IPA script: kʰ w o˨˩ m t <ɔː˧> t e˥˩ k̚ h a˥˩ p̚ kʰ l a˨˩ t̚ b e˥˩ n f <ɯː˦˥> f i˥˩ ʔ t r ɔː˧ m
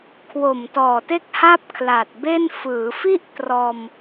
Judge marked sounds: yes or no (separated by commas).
no, no